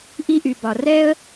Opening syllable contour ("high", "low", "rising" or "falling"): high